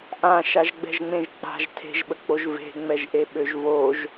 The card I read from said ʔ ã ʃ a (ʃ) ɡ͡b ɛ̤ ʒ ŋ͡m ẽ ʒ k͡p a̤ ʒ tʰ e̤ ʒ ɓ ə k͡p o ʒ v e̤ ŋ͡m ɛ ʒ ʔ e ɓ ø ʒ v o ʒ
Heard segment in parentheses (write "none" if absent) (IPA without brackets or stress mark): ʒ